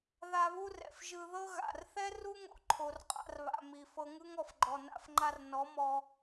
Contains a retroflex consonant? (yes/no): no